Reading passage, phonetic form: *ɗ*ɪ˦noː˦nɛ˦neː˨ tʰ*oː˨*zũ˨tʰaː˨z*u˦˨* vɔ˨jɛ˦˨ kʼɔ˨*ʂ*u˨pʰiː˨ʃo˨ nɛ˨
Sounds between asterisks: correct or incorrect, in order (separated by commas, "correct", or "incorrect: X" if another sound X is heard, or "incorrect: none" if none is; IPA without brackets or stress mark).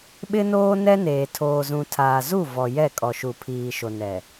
incorrect: ɓ, correct, correct, incorrect: ʃ